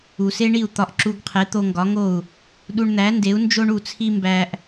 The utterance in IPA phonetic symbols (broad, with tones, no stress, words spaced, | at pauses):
u˩se˥ɳi˥˩u̯ t̪ɒ˧ʔǁu˧ɡqʰe˩˥ t̪o˧ŋɡɒ˩˥ŋo˥˩u̯ | ɗu˧ɳn̪æ˩˥nde˩˥u̯ nd͡ʒo˥ɳu˥˩t͡sʰi˥ mbæ˧ʔ